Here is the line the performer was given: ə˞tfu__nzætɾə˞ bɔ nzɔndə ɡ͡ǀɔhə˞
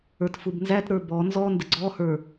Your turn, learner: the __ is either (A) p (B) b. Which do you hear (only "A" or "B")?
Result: B